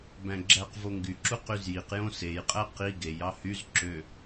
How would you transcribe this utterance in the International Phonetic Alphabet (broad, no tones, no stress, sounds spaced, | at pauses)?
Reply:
b æ̃ ɡ͡ǁ æ q v o ŋ ɡ y ǁ u q y z j i q j õ s e j qʼ æ q i ɡ e j ɑ h y z ǁ ø